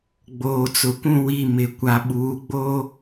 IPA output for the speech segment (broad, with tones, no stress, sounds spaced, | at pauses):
ɡ͡b oː˨ t͡s ʊ˨ kʷ ũ˦˨ w i˦˨ m ɪ˨ kʷ a˨ ɓ uː˨˦ ɡ͡b oː˦